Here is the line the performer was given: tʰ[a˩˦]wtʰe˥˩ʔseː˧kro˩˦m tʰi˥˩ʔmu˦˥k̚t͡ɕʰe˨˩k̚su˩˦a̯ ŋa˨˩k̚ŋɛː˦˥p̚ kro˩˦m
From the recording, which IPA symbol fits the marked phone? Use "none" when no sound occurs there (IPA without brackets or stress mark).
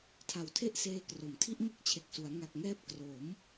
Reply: a˨˩